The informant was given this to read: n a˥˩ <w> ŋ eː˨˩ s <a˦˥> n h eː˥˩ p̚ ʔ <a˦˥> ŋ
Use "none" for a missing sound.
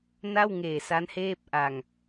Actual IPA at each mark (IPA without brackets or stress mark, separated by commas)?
w, a˦˥, a˧